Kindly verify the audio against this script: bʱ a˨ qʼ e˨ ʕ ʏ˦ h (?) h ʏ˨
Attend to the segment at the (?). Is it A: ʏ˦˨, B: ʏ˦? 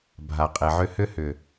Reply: B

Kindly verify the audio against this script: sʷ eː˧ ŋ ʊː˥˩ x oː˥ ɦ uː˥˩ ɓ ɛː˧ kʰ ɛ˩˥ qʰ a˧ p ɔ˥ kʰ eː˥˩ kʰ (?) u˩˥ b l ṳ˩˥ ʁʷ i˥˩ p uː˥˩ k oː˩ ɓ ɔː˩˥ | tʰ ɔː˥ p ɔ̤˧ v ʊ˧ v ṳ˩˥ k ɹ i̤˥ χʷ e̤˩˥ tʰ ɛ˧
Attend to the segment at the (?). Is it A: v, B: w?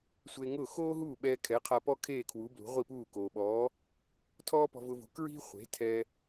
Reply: B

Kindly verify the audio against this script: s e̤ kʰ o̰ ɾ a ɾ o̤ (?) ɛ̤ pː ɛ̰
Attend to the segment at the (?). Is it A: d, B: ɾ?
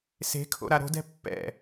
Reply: A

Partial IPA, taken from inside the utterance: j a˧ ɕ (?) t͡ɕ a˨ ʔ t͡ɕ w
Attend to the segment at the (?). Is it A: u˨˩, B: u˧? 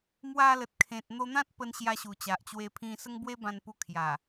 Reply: A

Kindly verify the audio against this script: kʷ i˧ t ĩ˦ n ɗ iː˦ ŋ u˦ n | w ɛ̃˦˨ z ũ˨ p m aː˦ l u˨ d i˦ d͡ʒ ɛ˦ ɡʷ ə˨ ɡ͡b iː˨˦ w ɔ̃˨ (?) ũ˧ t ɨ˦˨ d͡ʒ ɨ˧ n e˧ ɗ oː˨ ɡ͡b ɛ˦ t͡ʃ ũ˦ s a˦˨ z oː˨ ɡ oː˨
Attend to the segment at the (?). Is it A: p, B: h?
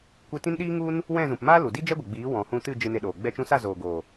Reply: B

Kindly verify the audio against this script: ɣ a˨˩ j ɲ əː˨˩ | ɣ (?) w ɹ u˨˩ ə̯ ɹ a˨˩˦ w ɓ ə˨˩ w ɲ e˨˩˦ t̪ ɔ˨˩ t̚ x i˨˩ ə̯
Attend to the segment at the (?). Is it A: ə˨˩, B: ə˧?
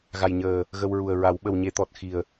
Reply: B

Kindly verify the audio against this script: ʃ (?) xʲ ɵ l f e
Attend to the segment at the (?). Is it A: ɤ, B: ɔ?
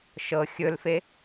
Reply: A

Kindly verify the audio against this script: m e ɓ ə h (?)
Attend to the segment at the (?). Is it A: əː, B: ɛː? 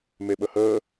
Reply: A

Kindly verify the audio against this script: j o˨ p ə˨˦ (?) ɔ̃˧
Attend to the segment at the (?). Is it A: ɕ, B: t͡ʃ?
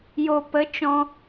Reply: B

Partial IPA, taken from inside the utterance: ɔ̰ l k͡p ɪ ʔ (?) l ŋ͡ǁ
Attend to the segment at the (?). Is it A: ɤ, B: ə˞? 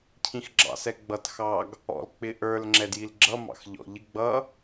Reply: B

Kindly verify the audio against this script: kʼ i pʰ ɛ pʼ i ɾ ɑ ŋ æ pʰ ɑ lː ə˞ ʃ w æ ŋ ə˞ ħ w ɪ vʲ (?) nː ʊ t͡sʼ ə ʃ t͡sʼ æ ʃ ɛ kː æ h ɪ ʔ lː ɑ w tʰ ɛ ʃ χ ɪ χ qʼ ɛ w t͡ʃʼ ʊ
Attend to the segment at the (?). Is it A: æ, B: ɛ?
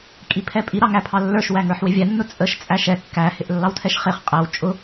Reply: A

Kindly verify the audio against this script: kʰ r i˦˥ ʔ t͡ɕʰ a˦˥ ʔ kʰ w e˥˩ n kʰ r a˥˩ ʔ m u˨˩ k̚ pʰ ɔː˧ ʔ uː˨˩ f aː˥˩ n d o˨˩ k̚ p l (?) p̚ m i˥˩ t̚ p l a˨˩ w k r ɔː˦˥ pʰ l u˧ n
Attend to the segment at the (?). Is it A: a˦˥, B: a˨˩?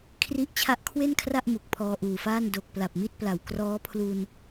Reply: B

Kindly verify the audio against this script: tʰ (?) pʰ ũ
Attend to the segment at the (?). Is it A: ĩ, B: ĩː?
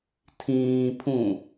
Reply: B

